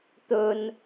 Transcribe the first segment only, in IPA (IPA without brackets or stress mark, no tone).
t̪